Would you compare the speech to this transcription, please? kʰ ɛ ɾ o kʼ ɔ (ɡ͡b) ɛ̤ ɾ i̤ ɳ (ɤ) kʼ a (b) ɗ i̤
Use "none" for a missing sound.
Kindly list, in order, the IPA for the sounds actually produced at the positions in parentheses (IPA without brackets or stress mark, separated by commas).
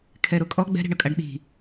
ɡ͡b, ɤ, ɖ